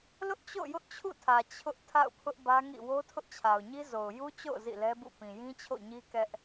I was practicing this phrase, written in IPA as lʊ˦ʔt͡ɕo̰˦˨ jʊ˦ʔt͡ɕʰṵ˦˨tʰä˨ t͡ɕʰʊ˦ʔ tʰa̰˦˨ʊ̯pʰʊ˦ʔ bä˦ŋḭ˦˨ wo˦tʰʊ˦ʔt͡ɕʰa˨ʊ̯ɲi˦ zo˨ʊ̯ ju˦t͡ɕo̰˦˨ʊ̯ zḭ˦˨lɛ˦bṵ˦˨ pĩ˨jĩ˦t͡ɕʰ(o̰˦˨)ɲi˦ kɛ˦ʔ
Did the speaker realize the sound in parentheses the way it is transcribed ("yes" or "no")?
yes